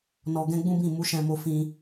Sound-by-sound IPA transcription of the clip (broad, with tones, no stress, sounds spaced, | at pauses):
n ɔ˧ ɡ ɛ̃˦ ɡ͡b ũ˦ b ĩ˦˨ m u˨˦ ʃ ɛ̃˧ m o˧ f ĩ˧